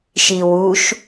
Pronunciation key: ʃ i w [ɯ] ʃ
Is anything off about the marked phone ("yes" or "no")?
yes